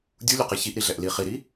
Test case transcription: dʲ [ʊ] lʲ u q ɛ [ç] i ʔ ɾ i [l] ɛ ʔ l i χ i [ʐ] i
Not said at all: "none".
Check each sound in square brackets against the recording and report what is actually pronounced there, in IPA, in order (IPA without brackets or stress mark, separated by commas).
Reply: u, ç, ɮ, ɾ